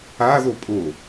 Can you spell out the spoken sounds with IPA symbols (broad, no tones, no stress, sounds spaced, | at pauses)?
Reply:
a ð o pʼ o